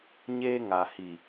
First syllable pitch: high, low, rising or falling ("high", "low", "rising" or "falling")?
high